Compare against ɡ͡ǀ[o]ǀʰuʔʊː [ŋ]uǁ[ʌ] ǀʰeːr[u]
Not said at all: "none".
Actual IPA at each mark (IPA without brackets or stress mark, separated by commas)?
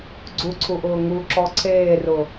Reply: u, ŋ, ɔ, ʊ